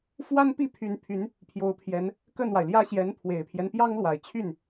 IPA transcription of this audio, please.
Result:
fwa˥npi˥˩pʰy˧˥npʰy˧˥n | pʰjo˧˥ʊ̯pʰjɛ˧˥n | kə˥˩nwa˩ɪ̯ljä˥ ɕjɛ˧˥npʰwe˨˩ɪ̯pʰjɛ˦n pjɑ˥ŋlwa˨˩ɪ̯t͡ɕʰy˥˩n

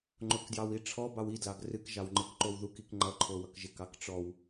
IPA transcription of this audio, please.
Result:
ŋ͡ǃokdjɑwiʈ͡ʂʰɔ bɑwi dlɑɡrɨk ʒɑwŋ͡ǃɨkǃowðuk ikŋ͡ǃʌ ǃʰowʌkʒɪk ɑkʈ͡ʂɔw

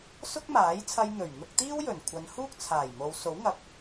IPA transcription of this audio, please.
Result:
sʊ˥k̚maː˨˥jt͡sʰɐ˧j n̪ɵ˨˩ɥ n̪ʊ˧k̚t̪iː˥wjɵ˨˩n kʷʰɐ˨˧nhuː˥k̚t͡sʰaː˨˩j mo˨˧w so˨˥wŋɐ˨k̚

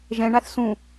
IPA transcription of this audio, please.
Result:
ʒɛ̃ ɳaθsũ

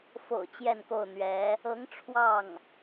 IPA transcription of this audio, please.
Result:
fo̰˨˩ʊ̯ t͡ɕjɛ˥˧nko˥˩ʊ̯n̪ɥɛ˧˥ | ɤ˧˥ŋ ʈ͡ʂʰwɑ˥˩ŋ

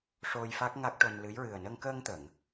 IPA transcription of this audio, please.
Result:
ʂo˧j fa˦˥k̚ŋa˦˥k̚ʈo˧nlɨ˧˥j ɹɨ˨˩ə̯nə˧ŋ kəː˧ŋt̪ə˨˩˨ŋ

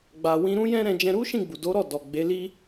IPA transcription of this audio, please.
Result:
ɡ͡ba˨wĩ˧ɾũ˦ jɛ̃˦ɾɛ̃˧d͡ʒɛ̃˧ ɾu˦ʃĩ˦˨ɡ͡bu˨ do˨˦ɾɔ˦˨ dɔ˨ɡ͡be˨˦li˦

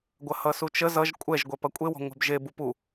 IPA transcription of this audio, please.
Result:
ɡʷɐhʌsut͡ʃə zʌʒ kʷʼɛʒɡʷɛ pɐkʷʼewɔ̤ ŋʷɛ̤bʒe bupu

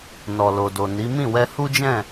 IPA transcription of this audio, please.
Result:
nɔ˨lo˨do˨ ni˨˦ mĩ˦˨wɛ˧hu˦d͡ʒɛ̃˦˨

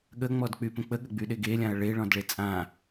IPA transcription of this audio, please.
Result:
ɠəŋ͡mɔdk͡pypə̃ k͡pəɠəɡ͡byɗeɡ elʲãɐ̯ ɭeɭɔ̃dɭe t͡sʼã

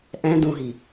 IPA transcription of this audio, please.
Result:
ʔɛ̃ dũɦi

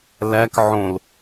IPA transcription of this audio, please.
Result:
læk ʕõl

